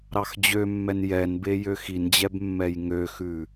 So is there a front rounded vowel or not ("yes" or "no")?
yes